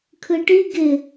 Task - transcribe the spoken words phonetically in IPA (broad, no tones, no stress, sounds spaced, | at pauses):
kʰ ɯ ʈ i ɡ ɪ